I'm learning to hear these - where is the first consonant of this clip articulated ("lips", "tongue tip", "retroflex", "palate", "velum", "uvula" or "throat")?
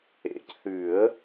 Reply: palate